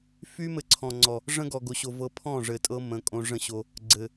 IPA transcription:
f y˦ m ɘ˧ ǀʰ ɔ̃˨ ŋ͡ǀ ɔ˨ | ʐ ə̃˦ ɡ ɔ˨ ɡ o˨ ɕ o˨ v ɤ˧ pʰ ɔ̃˦˨ ʐ ɘ˨ tʼ ɤ˧ m ə̃˨˦ kʼ õ˧ ʐ ə̃˦ ɕ o˧ | ɡ͡ǀ ɘ˨

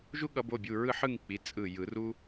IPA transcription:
ʒ u˥ ɠ ʌ˨˩˦ b o˩˧˩ bʲ u˩˧˩ ɹ ɯ˥˧ ħ ɯ˥˧ ŋ k͡p i˩˧˩ t͡sʼ ɯ˧˩ j ɯ˨˩˦ r u˥

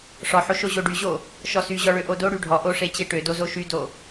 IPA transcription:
ʂ ɔ ħ o ʃ o ʑ o ɖ y ʑ o | ʃ ɔ s y ʑ ɔ ɭ ø ʔ o d o ɽ y ɖʱ ɔ ʔ o ʂ e t͡ɕ e ʈ ø d o z o ʃ y d o

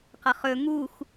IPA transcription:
q ʌ χ ɵ ŋ u x

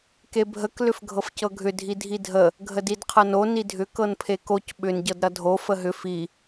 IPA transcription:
k e bʱ ə k l ʏ f ɡʱ ɤ f c ɤ ɡʱ ʏ dʱ i dʱ i dʱ ə | ɡʱ ə d i d qʰ ʌ n o n i dʱ ʏ k ɤ n pʰ e k o c ɓ ʏ n ɟ ɤ d ɾ ʌ dʱ o f ə ɦ ʏ f i

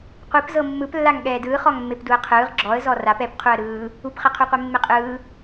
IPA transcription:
qʷ i p z ɤ mː ɯ p lː a ŋ ɠ ɛː d ɯː χ ɔ ŋ mː e p d u ə̯ qʰ ɯː ʁ ɡ͡ǁ ɔ ə̯ z ɔ r a p ɛ p qʰ u ə̯ ɾ ɯː | u p χ ɛ qʰ u qʷ e mː e qʼ ɯː

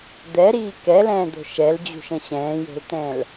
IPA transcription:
d̪ ɛ ɾ iː k ɛ l ɛ̃ː d̪ o̤ ʃ ɛ l d͡ʑ ṳ ʃ ə̃ ɕ ɛ̃ː j o̤ l t ɛ̃ l

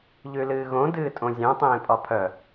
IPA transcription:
ʎ ʉ l ɨː ɣ õ d ɨː tʼ õ zʲ œ̃ tˤ ẽː pʼ ɒ pʰ œ

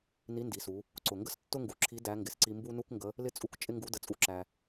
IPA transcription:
n i˧˥ n d i˩˧ s u˩˧ | ǀ ʊ˩ ŋ ɡ ə˥ s tː ʊ˥ ŋ ɡ u˩ ǁʰ i˧˥ d æ˧˥ ŋ ɡ ɪ˩ s ǀ i˧ m b u˥ n u˥ k ŋ ɡ ə˧˥ | l ɪ˥ t͡sʼ u˥ k t͡ʃʼ ɪ˥ ŋ ɡ u˧˥ d ə˧˥ t͡sʼ u˥ ǁ æ˧

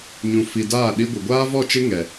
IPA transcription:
ɲ ũ˨ f i˨ d aː˦˨ ɗ i˦ ɡʷ ɪ˨ ɡʷ aː˦ v ɔ˦˨ t͡ʃ ɪ˦ ŋ ɛ˨

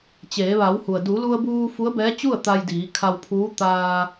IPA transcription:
t͡ɕ eː˩˧ ʋ a˩˧ w h u˩ ə̯ d u˩˧ l u˧ ə̯ b uː˧ f u˧˥ ə̯ b ɛː˧˥ t͡ɕ u˥˨ ə̯ t̪ a˧ j d iː˩˧ kʰ a˧ w pʰ uː˧˥ t̪ aː˧

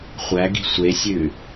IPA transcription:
χʷ æ ɡ i̤ sʷ e sʲ ʉ

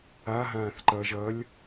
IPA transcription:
a ɦ ãː θ ǃ ʌ ʒ ʌ lʲ

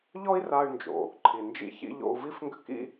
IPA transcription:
ʎ ɔ˥ i̯ r a˧ y̯ n d͡ʒ o̰˩ | ǃʰ i˩ n d͡ʒ ḭ˧ ç ḭ˧ ʎ o̰˧ u̯ v i˥ f ŋ ɡ ʏ˥ k ḭ˥

